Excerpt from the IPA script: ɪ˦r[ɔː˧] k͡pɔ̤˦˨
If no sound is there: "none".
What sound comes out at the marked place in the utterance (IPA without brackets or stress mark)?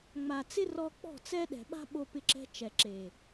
ɔ˧